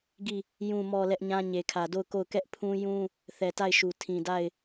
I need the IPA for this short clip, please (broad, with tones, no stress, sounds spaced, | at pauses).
ɡ i˦˨ | j ũ˨ m ɔ˨ l ɛ˦ ʔ ɲ ã˦ ɲ e˨ kʰ ä˨ d o˦˨ ʊ̯ k o˦˨ ʊ̯ k ɛ˦ ʔ pʰ ũ˦ j ũ˦ | θ ɛ˨ t a˦˨ ɪ̯ ʃ u˨ tʰ ĩ˨ d a˦˨ ɪ̯